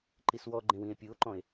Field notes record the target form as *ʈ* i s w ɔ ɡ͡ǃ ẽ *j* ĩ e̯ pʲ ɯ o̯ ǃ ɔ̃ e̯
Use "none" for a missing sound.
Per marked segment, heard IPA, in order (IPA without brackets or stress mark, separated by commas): ǃ, w